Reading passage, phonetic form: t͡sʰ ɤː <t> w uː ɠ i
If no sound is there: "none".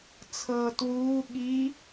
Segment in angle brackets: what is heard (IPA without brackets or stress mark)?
t